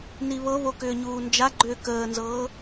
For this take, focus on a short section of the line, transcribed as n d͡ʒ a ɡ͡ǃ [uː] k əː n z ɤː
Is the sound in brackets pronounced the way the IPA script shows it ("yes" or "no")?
no